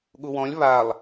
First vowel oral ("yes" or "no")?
yes